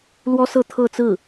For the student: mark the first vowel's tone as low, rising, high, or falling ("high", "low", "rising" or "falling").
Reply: high